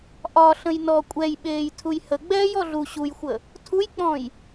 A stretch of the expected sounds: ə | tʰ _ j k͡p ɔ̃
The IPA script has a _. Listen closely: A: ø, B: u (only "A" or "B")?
B